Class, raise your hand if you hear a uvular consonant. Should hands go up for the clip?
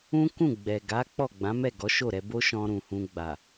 no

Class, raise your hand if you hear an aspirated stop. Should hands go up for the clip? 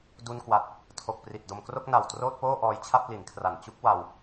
yes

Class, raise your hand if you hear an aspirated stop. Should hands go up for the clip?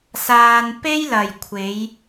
yes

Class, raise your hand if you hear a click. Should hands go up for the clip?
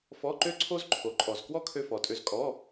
yes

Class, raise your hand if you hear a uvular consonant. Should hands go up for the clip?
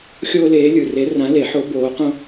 yes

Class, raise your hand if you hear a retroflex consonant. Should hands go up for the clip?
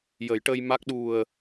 yes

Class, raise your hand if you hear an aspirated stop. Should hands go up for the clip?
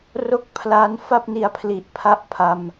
yes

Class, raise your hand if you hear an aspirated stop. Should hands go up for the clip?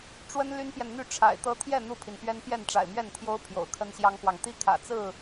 yes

